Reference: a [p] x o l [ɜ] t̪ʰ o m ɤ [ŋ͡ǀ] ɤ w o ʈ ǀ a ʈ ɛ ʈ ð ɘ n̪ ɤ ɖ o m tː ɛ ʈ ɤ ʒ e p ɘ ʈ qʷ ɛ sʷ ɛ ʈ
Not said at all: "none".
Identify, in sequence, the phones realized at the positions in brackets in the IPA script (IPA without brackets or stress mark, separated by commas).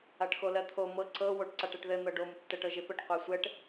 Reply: ʈ, ɜ, ǀ